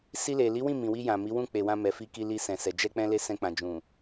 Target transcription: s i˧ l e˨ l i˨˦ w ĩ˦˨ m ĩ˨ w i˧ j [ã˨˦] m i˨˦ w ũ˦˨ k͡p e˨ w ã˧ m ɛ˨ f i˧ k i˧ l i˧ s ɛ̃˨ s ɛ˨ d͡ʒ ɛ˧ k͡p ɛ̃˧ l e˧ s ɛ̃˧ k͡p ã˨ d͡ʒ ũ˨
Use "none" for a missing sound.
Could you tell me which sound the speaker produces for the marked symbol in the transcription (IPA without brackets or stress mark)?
ã˨